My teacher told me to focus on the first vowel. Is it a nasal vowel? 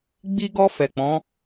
no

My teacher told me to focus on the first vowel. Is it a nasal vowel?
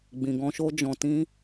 yes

